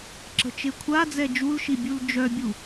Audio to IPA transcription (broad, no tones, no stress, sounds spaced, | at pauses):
ǁ ə̤ t͡ʃ e kʷʰ a d͡z ɛ d͡ʒ u l ʃ i bʲ u l d͡ʒ œ bʲ u